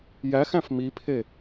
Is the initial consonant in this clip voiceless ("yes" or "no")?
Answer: no